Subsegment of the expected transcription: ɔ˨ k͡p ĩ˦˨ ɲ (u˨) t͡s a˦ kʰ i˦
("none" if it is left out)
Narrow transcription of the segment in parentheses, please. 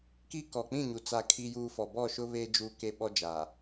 u˨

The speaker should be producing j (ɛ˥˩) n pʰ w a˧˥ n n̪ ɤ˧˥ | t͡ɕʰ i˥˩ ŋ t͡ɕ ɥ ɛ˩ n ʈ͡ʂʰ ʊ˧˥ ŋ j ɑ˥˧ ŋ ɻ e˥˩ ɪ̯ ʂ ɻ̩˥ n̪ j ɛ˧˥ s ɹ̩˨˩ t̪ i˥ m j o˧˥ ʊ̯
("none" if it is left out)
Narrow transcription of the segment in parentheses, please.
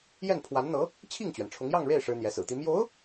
ɛ˥˩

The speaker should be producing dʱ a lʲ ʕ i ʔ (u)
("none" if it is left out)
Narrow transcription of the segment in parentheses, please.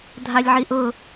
ʊ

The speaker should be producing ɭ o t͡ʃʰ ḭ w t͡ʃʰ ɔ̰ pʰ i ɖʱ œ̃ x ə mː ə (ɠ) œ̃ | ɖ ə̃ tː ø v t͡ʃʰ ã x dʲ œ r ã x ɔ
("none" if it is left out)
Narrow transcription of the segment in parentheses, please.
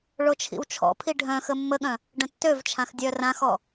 ɠ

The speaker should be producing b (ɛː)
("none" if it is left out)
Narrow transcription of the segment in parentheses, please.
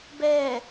ɛː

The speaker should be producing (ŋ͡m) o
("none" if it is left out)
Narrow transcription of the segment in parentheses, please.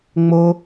ŋ͡m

